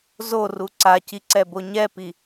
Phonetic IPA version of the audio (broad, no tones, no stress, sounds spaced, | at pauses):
z o r u ǀ a c i ǀ ɛ b o ɲ ɛ p i